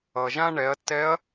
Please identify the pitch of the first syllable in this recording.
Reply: low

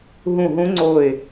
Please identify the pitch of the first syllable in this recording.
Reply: falling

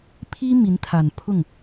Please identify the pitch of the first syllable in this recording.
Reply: high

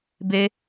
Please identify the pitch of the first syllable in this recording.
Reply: high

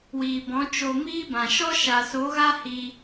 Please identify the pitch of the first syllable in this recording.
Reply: low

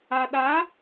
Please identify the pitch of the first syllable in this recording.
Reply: low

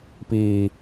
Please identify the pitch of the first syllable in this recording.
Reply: low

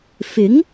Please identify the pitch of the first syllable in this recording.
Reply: rising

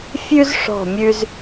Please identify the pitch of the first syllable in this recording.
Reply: high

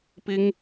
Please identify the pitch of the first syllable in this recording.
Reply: high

